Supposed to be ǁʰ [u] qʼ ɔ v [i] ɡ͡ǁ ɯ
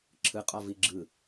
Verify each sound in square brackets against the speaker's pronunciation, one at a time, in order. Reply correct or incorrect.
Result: incorrect, correct

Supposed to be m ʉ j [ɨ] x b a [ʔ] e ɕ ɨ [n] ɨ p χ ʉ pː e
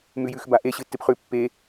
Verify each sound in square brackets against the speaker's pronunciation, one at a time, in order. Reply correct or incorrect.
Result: incorrect, correct, incorrect

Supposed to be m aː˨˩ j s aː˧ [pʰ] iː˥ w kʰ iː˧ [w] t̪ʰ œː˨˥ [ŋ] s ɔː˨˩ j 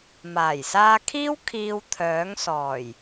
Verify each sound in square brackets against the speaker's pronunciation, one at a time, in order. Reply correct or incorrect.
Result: incorrect, correct, correct

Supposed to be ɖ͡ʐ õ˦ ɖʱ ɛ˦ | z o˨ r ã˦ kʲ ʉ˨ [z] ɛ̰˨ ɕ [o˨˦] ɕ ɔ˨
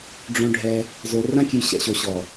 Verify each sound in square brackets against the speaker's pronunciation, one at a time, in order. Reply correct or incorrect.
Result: incorrect, incorrect

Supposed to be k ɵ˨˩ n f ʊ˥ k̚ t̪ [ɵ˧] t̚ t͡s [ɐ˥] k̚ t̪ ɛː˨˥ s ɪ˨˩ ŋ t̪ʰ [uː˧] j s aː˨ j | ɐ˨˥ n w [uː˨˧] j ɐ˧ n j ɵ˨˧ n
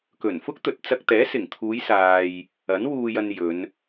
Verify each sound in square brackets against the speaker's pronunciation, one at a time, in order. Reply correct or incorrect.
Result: incorrect, incorrect, incorrect, incorrect

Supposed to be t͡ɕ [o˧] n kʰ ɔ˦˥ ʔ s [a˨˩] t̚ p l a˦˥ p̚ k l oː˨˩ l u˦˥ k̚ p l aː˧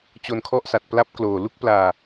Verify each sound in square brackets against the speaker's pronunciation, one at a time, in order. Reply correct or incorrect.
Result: correct, correct

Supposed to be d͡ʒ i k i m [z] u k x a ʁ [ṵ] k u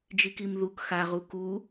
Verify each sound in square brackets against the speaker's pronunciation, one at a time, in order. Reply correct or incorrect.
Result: incorrect, incorrect

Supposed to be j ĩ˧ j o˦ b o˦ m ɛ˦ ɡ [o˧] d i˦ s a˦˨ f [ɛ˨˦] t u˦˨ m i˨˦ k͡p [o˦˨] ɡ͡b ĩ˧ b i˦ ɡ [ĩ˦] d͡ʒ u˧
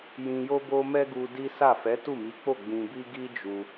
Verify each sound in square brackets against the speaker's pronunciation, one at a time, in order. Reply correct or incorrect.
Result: incorrect, correct, correct, incorrect

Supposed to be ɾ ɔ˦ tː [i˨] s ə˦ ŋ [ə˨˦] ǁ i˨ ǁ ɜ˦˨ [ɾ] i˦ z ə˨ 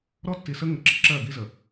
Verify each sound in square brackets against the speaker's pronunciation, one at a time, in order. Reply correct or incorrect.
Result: correct, correct, incorrect

